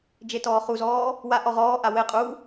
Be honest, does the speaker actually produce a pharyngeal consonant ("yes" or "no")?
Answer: no